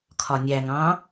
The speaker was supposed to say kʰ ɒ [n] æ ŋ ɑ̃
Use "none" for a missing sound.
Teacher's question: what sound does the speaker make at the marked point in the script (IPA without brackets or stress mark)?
nʲ